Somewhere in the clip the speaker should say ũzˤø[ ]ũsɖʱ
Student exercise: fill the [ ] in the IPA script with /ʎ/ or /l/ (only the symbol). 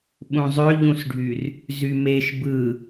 ʎ